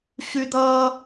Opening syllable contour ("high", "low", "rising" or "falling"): high